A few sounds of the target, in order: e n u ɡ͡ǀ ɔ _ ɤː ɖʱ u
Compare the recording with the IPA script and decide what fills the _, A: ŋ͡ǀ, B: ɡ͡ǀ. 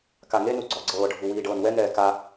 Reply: B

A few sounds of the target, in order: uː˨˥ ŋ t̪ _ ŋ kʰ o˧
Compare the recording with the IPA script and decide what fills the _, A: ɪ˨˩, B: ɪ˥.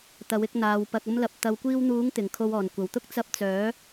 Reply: A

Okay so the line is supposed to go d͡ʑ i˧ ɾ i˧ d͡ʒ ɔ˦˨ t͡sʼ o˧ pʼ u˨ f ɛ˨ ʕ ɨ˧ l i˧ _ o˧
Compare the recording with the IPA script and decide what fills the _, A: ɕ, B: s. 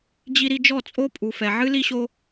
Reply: A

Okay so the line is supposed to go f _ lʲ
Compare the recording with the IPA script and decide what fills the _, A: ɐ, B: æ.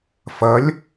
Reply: A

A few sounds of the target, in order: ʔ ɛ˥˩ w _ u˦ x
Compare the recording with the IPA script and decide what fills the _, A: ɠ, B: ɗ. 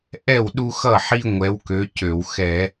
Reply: B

